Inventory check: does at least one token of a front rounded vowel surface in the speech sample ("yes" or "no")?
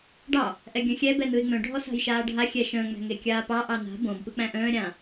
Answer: yes